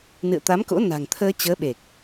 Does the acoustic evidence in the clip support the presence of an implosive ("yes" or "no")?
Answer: yes